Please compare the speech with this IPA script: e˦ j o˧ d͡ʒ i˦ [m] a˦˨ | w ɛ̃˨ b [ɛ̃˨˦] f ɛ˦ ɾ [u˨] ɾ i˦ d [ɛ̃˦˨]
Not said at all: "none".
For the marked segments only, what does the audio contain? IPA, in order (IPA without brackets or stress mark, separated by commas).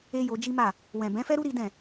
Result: m, ɛ̃˨˦, u˦, ɛ̃˦˨